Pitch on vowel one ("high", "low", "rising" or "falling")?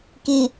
low